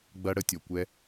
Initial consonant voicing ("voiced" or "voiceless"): voiced